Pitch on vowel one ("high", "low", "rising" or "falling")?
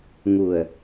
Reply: low